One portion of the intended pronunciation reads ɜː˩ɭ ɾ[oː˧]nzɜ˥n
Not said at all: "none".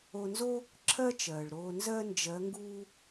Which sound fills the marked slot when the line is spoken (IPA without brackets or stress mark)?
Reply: oː˧